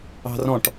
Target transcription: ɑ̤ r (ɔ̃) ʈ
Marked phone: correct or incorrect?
correct